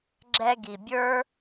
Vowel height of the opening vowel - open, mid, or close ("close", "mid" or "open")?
mid